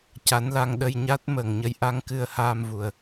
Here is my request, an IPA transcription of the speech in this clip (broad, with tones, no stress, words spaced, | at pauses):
ca˧˥nla˧ŋɗə˧j ɲa˦˥t̚ məː˨˩ŋɲə˧˥jʔa˧˥ŋ kɨ˧ə̯haː˧mvu˨˩ə̯